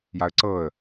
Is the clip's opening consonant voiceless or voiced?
voiced